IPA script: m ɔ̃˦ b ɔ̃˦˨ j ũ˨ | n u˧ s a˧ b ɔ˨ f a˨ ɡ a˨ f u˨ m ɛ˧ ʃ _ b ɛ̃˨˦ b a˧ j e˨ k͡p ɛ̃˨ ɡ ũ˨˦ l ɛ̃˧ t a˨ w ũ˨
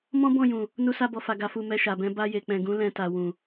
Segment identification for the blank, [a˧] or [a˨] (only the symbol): a˨